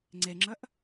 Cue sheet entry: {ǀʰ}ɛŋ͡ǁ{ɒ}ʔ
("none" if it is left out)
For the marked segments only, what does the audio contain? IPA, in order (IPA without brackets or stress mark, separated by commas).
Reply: ŋ͡ǀ, ʌ